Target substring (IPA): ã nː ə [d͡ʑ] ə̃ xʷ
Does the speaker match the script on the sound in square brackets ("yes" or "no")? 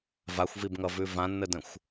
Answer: no